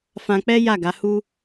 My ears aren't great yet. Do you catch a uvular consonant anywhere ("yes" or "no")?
no